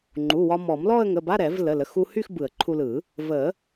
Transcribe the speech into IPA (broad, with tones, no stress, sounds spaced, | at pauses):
ŋ͡ǃ u˩˧˩ w ɒ˧ m ɔ˨˩˦ m l ɔ˥˧ ə̯ ŋ ə˩˧˩ b a˧˥˧ ɾ ɛ˨˩˦ v l ə˩˧˩ l ə˩˧˩ x u˧ h y˥˧ x b ɯ˨˩˦ ə̯ ǃʰ u˧ l ɯ˨˩˦ | v ə˨˩˦